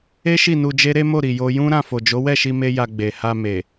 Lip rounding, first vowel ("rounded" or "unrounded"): unrounded